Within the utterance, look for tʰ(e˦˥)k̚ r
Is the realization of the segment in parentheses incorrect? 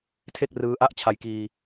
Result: yes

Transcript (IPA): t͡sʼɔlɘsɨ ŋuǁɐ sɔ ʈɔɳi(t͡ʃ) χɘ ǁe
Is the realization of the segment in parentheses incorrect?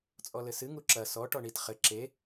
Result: yes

